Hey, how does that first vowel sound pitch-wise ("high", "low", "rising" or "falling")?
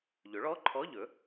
rising